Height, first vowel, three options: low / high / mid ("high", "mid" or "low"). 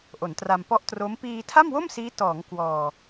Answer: mid